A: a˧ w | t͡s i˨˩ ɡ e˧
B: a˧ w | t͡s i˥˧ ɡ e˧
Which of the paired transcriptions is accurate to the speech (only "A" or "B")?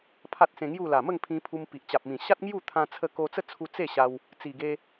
A